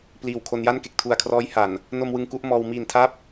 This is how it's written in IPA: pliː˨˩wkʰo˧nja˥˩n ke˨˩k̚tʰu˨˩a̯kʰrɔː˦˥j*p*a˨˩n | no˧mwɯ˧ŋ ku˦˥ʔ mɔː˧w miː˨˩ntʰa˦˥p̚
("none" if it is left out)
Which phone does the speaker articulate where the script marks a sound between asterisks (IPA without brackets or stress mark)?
h